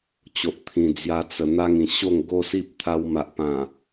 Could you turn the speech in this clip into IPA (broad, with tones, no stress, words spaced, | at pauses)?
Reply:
t͡ɕo˨ʔt̪ʰĩ˨˩d͡zja˧ t͡sə˨˩ n̪a˧ŋ ĩ˨˩ ɕo˥˧ŋ ɡo˦si˦p̚t̪ʰa˧w ma˨ʔpã˨˩